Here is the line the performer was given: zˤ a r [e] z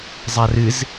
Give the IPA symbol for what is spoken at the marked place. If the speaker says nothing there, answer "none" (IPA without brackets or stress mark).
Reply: ɨ